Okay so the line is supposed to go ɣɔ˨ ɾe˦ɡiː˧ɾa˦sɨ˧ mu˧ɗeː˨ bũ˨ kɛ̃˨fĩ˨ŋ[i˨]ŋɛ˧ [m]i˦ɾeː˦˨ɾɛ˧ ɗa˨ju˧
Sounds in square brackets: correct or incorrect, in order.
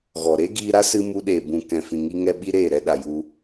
incorrect, incorrect

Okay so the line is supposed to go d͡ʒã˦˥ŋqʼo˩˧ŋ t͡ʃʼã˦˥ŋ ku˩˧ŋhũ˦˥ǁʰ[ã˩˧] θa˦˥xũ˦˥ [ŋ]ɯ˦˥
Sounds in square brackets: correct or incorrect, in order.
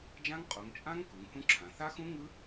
correct, correct

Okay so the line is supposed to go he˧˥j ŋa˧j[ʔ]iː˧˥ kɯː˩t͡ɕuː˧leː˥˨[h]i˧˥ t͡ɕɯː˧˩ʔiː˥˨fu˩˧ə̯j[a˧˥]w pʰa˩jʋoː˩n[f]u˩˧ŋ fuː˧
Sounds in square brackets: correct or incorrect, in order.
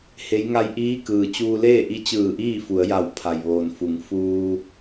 correct, incorrect, incorrect, correct

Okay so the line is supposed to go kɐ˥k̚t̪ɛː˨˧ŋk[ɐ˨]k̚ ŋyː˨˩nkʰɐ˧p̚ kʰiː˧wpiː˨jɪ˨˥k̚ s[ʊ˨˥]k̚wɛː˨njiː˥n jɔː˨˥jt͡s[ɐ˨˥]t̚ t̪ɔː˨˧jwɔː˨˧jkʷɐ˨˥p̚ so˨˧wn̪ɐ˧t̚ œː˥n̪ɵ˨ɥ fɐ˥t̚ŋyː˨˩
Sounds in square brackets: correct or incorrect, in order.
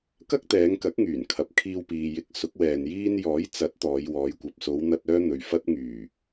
incorrect, correct, correct

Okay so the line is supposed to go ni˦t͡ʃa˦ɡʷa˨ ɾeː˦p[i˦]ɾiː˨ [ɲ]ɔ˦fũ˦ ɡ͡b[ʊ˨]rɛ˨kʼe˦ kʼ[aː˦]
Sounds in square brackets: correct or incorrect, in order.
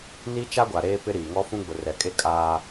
incorrect, incorrect, correct, correct

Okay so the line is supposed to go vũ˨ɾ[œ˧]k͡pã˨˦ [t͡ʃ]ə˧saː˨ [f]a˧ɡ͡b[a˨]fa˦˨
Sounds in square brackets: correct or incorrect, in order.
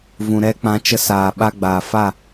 incorrect, correct, incorrect, incorrect

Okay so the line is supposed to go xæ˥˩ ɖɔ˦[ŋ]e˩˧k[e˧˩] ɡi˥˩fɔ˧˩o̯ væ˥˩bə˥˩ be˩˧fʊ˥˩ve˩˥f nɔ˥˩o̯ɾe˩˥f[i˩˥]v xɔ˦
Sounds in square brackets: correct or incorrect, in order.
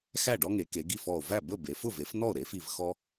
correct, incorrect, incorrect

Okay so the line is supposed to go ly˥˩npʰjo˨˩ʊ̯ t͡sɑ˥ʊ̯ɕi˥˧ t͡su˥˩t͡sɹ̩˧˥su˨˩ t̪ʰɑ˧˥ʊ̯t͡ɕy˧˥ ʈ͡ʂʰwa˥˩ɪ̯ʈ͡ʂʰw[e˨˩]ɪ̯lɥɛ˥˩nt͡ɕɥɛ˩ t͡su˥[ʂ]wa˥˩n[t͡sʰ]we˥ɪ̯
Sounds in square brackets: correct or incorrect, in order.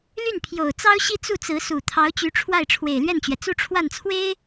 correct, incorrect, correct

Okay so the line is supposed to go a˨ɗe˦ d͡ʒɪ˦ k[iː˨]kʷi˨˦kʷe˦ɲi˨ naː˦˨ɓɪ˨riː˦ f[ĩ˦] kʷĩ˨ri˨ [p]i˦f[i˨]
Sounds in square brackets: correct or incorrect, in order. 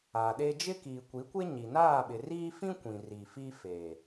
correct, correct, incorrect, incorrect

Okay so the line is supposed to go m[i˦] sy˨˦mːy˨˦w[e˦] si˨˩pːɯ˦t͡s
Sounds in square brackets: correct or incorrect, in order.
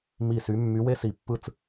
incorrect, correct

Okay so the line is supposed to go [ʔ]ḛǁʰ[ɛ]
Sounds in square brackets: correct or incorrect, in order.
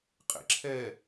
incorrect, correct

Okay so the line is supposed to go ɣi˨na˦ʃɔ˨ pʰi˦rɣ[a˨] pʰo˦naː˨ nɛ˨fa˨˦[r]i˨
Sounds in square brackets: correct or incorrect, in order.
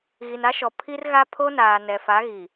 incorrect, incorrect

